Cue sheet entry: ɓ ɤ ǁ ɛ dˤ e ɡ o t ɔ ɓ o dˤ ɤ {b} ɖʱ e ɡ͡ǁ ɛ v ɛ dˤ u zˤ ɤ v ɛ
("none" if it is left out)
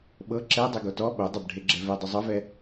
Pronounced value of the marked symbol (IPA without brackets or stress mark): b